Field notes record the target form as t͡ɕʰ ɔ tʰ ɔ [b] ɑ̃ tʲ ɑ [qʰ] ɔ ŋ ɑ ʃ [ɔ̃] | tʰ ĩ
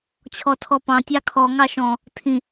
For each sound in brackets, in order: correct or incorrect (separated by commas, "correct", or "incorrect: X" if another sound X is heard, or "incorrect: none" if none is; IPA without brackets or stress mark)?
incorrect: p, incorrect: kʰ, correct